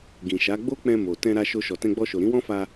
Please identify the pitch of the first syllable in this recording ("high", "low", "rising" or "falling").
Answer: low